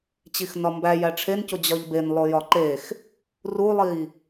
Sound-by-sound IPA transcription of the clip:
t͡ɕ i x n ɒ m b æ j æ ʈ͡ʂʰ e n c o d͡ʑ ɒ ʎ b e n lˠ o j ɒ ǃ e x | r u lˠ i

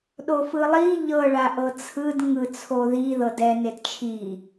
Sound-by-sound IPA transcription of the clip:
ɗ o f ɯ lˠ i ʎ ɤ ɭ a ʔ ɤ t͡sʰ ɯ d ŋ ɯ t͡sʰ o ð i ð ɤ d ɛ n e d t͡ʃʰ i

